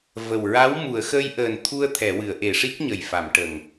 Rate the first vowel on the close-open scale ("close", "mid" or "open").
mid